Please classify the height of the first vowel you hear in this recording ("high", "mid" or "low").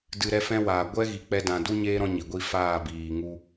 high